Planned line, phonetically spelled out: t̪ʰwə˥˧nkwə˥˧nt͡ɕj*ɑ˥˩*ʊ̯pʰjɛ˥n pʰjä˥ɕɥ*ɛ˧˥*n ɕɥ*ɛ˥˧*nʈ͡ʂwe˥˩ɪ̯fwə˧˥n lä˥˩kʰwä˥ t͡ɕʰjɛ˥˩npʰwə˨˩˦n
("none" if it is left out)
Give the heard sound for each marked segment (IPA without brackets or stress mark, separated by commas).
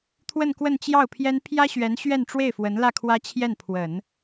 ɑ˥˩, ɛ˧˥, ɛ˥˧